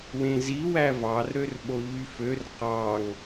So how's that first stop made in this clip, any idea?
implosive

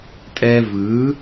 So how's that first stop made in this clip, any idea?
ejective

